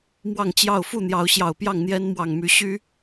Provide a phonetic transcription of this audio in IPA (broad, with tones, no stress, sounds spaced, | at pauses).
m w ɑ˥˨ ŋ t͡ɕ j ɑ˥˨ ʊ̯ f u˥˨ n̪ j ɑ˨˦ ʊ̯ ɕ j ɑ˨˩ ʊ̯ p j ɑ˥˨ ŋ n̪ j ɛ˦ n m w ɑ˨˩ ŋ m y˨˦ ɕ y˦